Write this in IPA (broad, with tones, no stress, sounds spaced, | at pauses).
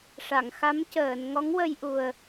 ʂ a˨˩˨ ŋ x a˧˥ m c əː˨˩˨ n ŋ ɔ˧˥ ŋ w ə˧ j ʔ u˨˩ ə̯